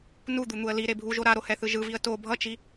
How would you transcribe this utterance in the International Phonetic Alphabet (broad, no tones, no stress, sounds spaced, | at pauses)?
n u d̪ u n̪ u ə̯ l i ɾ e bʱ u ʒ o ɾ a ɾ o h ɛ θ ɯ ʒ ɯ v i ə̯ t o bʱ ʌ t͡ʃ i